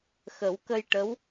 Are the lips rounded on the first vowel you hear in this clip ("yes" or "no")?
no